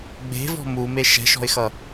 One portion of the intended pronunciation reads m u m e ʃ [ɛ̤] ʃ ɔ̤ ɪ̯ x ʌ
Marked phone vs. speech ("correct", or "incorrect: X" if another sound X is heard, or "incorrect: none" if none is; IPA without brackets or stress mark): correct